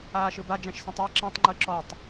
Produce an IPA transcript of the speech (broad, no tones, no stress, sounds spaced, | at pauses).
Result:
aː ʃ ɯ b a d͡ʒ æ̃ ʃ s ĩ tˤ æ ǁ ĩ tˤ ŋ͡ǃ ɯ ǁ ɔ tˤ